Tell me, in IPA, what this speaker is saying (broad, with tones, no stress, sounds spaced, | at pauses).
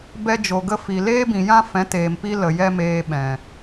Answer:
b ɛ˧ d͡ʒ o˨ ɡ ə˧ f i˨ l eː˦ b ĩ˨ j ã˦ f ɛ̃˨˦ t eː˨ m p i˧ l ə˨ j ɛ˦ m eː˧ ɓ ɛ̃˨